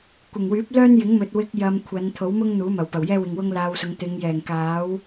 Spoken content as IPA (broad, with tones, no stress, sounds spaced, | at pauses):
kʷ ɪ˨˩ ŋ w yː˨˥ p̚ l œː˥ n j ɪ˨˥ ŋ m ɵ˨ t̚ w ɪ˧ k̚ j ɐ˧ m kʷʰ ɐ˨˧ n t̪ʰ o˨˥ w m ʊ˥ ŋ n̪ uː˨˥ m ɐ˨˩ w p ɐ˨˩ w j ɛː˥ w ɪ˨ ŋ w ʊ˥ ŋ l aː˧ w s ʊ˨˧ ŋ t̪ ɪ˨˧ ŋ j ɛː˨˩ ŋ k aː˨˥ w